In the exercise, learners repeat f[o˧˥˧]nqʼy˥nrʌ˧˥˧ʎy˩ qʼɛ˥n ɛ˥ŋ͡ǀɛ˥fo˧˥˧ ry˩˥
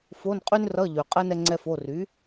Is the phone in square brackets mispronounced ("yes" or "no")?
no